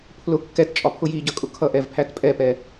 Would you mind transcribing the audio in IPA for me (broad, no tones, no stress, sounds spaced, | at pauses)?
pʰ l ʊ kː ɛ t t͡ʃʼ ɒ pʰ ʊ j i ɟ ʌ kʼ ʊ kʰ ʌ ʔ ɛ v pʰ æ t pʼ ɛ p ɛ